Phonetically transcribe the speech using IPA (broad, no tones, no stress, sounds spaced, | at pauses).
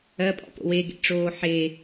ɜ pʼ ɔ̰ p o̰ w e ɡ ḛ ʈ͡ʂ oː ħ e